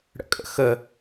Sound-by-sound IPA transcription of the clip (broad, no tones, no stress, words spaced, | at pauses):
ɽə̰kʼə̰xə